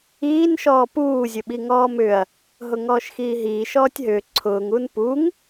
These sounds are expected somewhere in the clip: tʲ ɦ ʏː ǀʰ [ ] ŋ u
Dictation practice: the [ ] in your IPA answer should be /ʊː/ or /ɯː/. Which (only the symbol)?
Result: ʊː